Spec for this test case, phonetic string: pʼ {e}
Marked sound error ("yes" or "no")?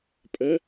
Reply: yes